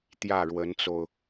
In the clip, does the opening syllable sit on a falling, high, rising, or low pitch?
falling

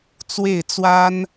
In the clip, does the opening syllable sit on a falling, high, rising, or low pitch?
falling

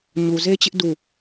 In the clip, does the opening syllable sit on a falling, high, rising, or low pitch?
low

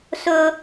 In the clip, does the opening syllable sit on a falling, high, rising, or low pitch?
high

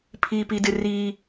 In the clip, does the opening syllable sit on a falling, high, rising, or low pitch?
high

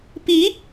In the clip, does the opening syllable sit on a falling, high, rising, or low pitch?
rising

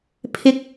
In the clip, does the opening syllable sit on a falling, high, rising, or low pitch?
rising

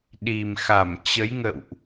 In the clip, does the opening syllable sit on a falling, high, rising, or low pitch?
low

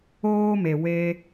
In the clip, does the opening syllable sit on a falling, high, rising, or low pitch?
high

